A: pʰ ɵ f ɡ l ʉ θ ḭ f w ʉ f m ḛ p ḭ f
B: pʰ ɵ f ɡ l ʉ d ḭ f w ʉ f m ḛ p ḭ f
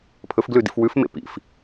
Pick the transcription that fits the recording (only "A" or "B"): B